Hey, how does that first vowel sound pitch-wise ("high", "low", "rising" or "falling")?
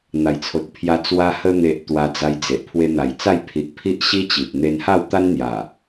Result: low